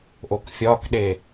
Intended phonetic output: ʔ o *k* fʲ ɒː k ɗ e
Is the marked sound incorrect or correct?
correct